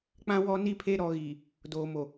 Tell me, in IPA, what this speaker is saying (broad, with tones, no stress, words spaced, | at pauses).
k͡pã˦wɔ˦ni˦pʰe˦ ɾɔ˨ ɣi˨ | doː˨mo˨